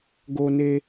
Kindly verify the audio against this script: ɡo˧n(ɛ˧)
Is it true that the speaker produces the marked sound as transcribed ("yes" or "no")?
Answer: no